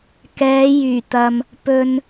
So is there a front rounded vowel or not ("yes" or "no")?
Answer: yes